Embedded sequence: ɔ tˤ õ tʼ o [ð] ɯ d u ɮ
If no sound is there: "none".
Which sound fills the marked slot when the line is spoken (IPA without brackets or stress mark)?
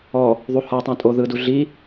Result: ð